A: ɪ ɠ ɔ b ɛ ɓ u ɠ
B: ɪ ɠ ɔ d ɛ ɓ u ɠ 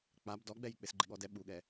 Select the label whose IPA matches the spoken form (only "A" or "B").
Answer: B